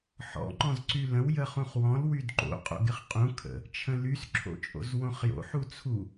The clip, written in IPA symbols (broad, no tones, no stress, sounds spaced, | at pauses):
ħ ɔ̰ ŋ͡ǃ ɔ̃ z ǀ y l ə̃ w j ə χ ũ χ w ɔ̃ l w y d ǃ o̰ qʼ o̰ ɡ ɪ χ qʼ ũ kʰ ə̰ | t͡ʃʰ ə̃ l y s ǁʰ o̰ t͡ʃʼ o̰ z w õ χ j o̰ ħ u t͡sʰ u